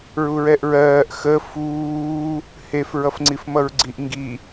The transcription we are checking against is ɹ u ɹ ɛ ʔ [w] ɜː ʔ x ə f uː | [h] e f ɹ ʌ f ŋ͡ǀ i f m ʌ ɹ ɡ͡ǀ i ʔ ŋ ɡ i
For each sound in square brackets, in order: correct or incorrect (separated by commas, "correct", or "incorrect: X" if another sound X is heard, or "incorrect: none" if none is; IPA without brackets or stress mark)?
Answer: incorrect: ɹ, correct